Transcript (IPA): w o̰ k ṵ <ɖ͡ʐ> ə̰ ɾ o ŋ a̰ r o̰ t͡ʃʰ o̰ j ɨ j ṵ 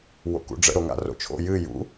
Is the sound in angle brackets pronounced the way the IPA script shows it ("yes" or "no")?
yes